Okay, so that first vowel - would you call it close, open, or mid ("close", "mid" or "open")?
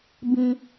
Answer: close